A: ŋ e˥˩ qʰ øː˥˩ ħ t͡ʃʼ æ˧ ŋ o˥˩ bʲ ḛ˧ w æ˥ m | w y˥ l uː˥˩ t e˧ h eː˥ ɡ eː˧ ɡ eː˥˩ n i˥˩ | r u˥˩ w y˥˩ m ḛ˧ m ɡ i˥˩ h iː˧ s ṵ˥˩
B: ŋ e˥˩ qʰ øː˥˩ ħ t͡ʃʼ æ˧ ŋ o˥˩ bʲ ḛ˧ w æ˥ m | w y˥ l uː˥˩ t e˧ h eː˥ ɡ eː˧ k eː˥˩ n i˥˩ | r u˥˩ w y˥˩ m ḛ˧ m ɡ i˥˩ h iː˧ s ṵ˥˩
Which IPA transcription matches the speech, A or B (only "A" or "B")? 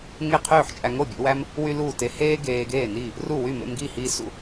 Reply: A